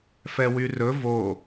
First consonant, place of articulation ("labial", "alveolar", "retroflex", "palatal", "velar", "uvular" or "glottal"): labial